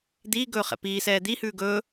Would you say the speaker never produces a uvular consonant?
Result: no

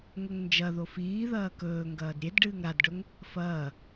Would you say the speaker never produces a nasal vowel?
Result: yes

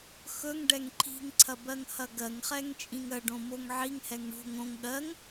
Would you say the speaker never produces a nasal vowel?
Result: no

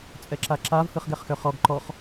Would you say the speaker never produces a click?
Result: no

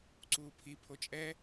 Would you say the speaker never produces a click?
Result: no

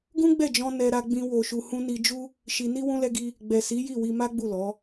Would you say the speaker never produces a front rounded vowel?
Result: yes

